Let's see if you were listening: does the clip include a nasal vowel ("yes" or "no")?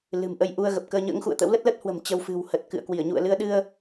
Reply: no